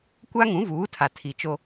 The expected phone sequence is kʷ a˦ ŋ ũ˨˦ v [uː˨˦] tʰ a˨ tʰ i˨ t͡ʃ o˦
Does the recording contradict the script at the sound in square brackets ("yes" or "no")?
no